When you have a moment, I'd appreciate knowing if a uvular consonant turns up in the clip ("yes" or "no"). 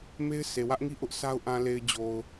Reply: no